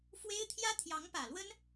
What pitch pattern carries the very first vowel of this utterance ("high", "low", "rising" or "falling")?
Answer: high